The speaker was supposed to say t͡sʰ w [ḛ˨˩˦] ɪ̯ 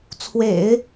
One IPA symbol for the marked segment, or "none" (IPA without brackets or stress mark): ḛ˨˩˦